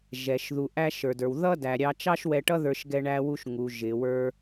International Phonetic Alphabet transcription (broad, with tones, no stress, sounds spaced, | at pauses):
ʒ ɛ˩ ʃ ð u˩ ʔ æ˧ ʃ ə˞˩ d ə˞˩ w ð ʌ˥ d æ˩ ɾʲ ɑ˧ t͡ʃ ɑ˥ ʃ w ɛ˧ ʈ ʌ˥ ð ə˞˧ ʃ ɡ ɛ˧ ɳ æ˧ w u˧ ʃ ŋ u˩ ʒ ɪ˩ w ə˞˧